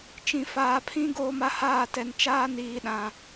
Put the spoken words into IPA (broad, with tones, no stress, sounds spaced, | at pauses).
t͡ʃ ĩ˨ f aː˨ pʰ ĩ˦ ɡ oː˦ m a˦ h aː˦˨ t ɛ˨ n t͡ʃ aː˦ n iː˨ ɗ ã˨